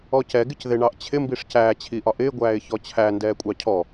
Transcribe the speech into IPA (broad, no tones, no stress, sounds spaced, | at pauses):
ɔ c ɛ ɡ ɪ c ð ɪ ɳ ɑ ʔ t͡ɕʰ ɪ m b i ʂ c æː t͡ɕʰ i ʔ ɒ ʔ ɪː ɡʷ æː ɪ̯ ç ɔ t͡ɕʰ æ n d ɛː kʷʼ ɑ cʰ ɔ